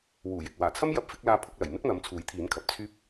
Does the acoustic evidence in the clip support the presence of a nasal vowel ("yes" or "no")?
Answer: no